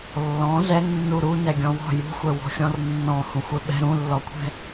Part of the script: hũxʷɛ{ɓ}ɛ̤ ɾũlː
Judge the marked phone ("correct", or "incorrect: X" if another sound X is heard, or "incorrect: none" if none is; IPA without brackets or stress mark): correct